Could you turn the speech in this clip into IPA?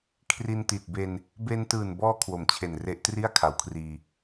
kʰri˧nti˨˩t̚be˧n | be˧ntɯː˨˩n bɔː˦˥ kʰwo˩˦mt͡ɕʰe˨˩nre˦˥ʔ tri˥˩a̯kʰa˩˦wkʰriː˧

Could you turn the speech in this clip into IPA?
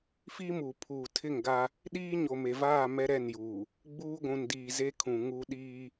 fiː˦muː˨ pʰuː˨tʰɪ˦˨ŋɡa˦ | ɗiː˦ɲo˨me˨vaː˦˨ mɛ˦ ɾɛ˦˨njuː˨ | ɡ͡buː˦ɡʷũ˨n diː˨ze˦kʰũ˨ ŋu˦ ɗiː˦

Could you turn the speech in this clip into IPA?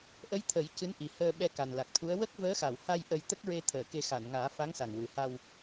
ʔə˧˥j t̪ʰə˨˩˦jcɨ˧˥nʔi˨˩ həː˧ ɓɛ˧ka˨˩nla˨˩k̚t̪ʰu˧˥ə̯ wə˦˥k̚vəː˧˥xa˨˩˨w ha˧j ʔə˧jt̪ə˦˥k̚ɹe˧ t̪ʰəː˨˩˨ ke˧ xa˨˩˨nŋaː˨˩˦ fa˧˥ŋsa˨˩ŋwɨ˨˩ha˧w

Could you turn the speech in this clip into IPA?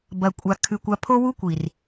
bɐ˨kʷʼa˨kʰʉ˨kʷ a˧pʰo˦wu˦kʷi˨r

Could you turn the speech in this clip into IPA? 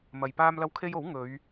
mɐ˨j paː˧mlɐ˧wkʰe˧j o˨˥w ŋɵ˨˧ɥ

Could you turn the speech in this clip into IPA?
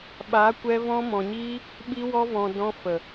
ɓaː˨˦kʷɛ˧ vɔ̃˧ mɔ̃˨ɲiː˧ | ɓi˧wɔ˧vɔ̃˨ dɔ̃˧fə˨

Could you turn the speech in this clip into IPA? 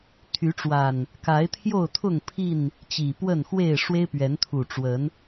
t̪ʰy˨˦ʈ͡ʂwa˨˩n | ka˨˦ɪ̯t̪ʰjo˥˨ʊ̯t̪ʰʊ˥˨ŋpʰi˥˨n | t͡ɕi˨˩pwə˥˨nxwe˥˨ɪ̯ ʂwe˦ɪ̯pɥɛ˨˦nt̪ʰu˨˩ ʈ͡ʂwə˨˦n

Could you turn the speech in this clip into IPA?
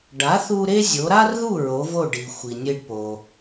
ɖa˩˥θu˧ ɾe˥zʲo˩˥ ɾa˥rðu˥˩ ɹo˩˥vo˥˩ ɖi˩ xʷi˩nʲe˧ɖpo˩

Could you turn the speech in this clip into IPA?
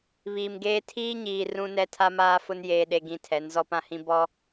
βiː˨mɡeː˦ tʰiː˦ɲiː˨ rũ˦nɛ˦ tʰa˦maː˦fʊ˦n jeː˦ɗe˦ɡĩ˦ tʰɛ˨˦nzɔ˦pã˦hĩ˦ bɔ˦

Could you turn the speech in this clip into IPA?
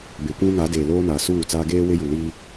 be˨kʷũ˦ŋa˨˦deː˨ loː˦naː˨suː˦˨t͡saː˦ ɡeː˦ wɪ˦ju˨ liː˦

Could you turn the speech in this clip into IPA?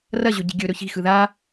rɐʑɵɟi̤ ɡʲɵ ɾɵçi̤xɯ ða

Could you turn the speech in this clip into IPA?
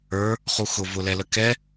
ə˞ | χuxʊ vʊlɛləkɛ

